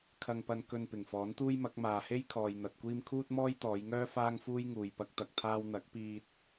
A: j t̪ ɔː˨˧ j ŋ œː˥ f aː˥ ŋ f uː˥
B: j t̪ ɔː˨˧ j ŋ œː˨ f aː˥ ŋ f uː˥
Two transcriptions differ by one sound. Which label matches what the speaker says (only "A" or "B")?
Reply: A